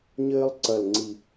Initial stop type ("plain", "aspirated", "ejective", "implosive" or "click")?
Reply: click